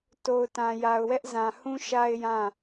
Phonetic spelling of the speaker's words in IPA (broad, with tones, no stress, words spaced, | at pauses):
to˨ʊ̯tã˨ja˨ʊ̯wɛ˦ʔ zã˨hũ˦ ʃa˦ɪ̯jã˦˨